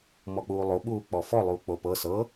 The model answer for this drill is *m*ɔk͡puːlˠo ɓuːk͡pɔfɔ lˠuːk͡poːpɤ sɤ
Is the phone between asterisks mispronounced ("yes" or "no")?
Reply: no